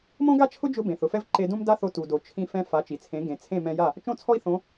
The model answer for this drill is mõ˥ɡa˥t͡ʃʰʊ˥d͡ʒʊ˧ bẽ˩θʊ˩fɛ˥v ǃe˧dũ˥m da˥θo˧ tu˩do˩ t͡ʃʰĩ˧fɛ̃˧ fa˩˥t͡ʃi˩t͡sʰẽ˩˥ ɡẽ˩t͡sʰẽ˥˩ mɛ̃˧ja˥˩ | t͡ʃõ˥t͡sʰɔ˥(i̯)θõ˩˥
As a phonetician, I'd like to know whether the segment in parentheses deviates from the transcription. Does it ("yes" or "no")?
no